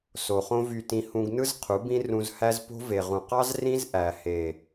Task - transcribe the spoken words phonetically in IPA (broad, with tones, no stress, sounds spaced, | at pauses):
s o˨ χ õ˦ v y˧ t ĩ˧ h ũ˧ ɡ n ɯ˦ z qʰ u˨˦ b ĩ˦ r ũ˧ z h æ˦ z p o̤˦ v e˨ ʁ ũ˨ q ɑ˦ z r ĩ˦ z ʔ æ˨ h e˨